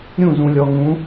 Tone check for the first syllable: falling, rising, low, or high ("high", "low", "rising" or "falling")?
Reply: falling